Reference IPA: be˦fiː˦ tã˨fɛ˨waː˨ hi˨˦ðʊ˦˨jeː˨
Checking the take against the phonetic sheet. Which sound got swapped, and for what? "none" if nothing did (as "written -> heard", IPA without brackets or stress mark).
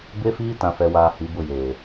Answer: ð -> b